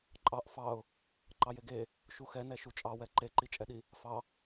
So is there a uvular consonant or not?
no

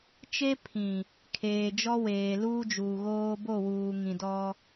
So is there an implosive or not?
no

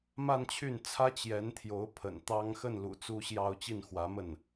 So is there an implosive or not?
no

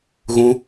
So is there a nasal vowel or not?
yes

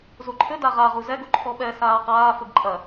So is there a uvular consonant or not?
yes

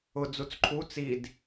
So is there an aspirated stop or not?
yes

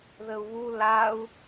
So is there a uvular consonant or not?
no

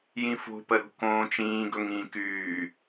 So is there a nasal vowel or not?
yes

